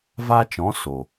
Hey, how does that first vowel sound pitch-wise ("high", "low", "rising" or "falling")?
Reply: high